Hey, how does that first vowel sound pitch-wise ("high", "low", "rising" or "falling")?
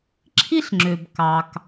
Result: high